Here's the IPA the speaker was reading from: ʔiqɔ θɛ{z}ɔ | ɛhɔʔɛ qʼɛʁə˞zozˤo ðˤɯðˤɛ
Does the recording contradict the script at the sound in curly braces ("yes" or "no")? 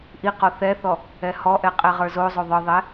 yes